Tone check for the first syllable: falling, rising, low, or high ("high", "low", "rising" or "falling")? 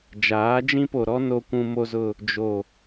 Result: rising